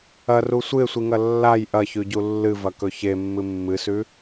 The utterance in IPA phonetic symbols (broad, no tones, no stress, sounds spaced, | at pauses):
ɐ r u sʷ ɨ e̯ sʷ i ŋ ɐ lː a j ʔ ɐ ç ʉ ɟ u lː ɨ v ɐ k ɵ ç e mː ɨ mː ɨ s ʉ